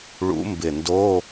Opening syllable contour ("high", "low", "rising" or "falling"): rising